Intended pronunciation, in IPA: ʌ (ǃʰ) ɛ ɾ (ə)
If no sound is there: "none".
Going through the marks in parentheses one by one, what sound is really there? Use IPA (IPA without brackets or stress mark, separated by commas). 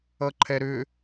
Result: ǃʰ, ʏ